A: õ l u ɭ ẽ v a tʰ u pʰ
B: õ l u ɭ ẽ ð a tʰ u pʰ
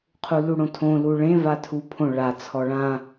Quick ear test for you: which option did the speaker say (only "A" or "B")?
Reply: A